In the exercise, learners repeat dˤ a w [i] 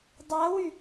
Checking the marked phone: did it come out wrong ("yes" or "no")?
yes